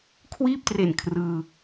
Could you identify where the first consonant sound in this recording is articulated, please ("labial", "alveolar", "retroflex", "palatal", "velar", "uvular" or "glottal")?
velar